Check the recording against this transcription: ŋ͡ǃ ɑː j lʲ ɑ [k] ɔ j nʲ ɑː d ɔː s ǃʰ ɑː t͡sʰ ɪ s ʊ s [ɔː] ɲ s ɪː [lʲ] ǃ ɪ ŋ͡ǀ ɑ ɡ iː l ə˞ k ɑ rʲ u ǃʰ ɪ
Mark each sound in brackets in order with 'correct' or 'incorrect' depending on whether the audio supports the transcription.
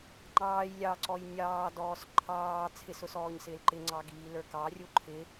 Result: incorrect: ǀ, correct, incorrect: l

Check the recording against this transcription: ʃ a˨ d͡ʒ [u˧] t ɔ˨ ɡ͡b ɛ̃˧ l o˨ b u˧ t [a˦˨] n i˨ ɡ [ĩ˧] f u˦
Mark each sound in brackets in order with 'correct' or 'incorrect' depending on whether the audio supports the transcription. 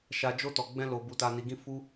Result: incorrect: o˧, incorrect: a˧, correct

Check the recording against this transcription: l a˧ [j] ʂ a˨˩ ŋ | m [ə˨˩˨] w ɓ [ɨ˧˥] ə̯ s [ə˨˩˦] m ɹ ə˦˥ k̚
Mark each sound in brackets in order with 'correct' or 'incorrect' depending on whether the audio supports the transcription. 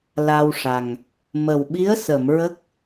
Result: incorrect: w, incorrect: ə˨˩, incorrect: i˧˥, incorrect: ə˨˩˨

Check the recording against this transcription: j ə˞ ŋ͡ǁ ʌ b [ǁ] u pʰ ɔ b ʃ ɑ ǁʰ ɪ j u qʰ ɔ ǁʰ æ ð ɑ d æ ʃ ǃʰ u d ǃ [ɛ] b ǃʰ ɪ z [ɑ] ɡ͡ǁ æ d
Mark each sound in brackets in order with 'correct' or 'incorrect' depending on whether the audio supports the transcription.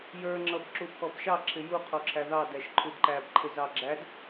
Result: correct, incorrect: æ, correct

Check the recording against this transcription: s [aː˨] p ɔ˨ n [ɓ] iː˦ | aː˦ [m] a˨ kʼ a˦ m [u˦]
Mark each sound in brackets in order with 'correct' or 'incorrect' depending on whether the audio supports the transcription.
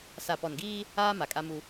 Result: incorrect: a˨, incorrect: ɡ, correct, correct

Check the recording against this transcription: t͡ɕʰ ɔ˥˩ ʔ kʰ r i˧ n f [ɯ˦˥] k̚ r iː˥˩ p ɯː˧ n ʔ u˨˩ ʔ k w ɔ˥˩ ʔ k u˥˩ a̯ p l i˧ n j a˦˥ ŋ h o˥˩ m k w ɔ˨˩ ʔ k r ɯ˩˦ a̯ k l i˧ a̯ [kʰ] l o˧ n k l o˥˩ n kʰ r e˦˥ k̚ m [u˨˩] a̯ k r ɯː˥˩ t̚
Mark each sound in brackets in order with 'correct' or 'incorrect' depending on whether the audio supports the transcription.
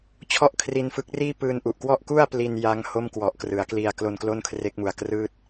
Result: correct, incorrect: k, correct

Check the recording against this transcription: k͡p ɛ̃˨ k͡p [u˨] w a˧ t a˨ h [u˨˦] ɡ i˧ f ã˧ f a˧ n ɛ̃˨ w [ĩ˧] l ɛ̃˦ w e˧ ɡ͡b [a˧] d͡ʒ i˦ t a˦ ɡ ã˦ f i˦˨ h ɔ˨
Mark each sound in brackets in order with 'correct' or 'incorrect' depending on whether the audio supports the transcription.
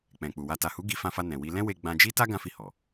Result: correct, correct, incorrect: i˧, incorrect: ã˧

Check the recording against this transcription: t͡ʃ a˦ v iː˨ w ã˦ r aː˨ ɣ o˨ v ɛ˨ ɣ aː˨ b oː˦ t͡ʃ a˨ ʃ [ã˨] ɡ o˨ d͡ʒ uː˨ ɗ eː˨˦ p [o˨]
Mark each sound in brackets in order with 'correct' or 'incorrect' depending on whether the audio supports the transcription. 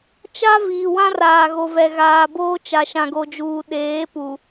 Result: correct, incorrect: u˨

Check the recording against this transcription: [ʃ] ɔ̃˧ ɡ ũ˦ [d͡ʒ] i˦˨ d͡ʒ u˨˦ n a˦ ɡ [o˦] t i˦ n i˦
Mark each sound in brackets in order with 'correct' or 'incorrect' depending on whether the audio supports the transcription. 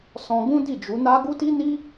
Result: incorrect: s, incorrect: d, incorrect: u˦

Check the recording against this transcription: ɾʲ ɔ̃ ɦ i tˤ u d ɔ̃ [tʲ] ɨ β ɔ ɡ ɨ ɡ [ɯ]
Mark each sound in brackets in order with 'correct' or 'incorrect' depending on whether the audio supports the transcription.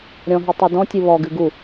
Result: correct, incorrect: u

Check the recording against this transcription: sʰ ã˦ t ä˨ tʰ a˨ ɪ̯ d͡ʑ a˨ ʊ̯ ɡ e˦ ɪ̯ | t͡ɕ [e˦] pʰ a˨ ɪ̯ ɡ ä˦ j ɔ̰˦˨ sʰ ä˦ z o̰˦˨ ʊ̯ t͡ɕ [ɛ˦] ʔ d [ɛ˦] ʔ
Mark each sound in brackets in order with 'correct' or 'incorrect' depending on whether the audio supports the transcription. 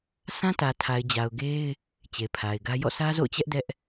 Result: incorrect: e˨, correct, correct

